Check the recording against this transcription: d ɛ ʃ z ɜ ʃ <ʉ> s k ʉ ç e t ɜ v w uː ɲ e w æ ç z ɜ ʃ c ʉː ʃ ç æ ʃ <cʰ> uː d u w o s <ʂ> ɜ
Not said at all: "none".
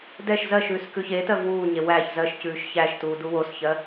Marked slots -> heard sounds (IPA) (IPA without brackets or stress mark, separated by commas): ʉː, t, ç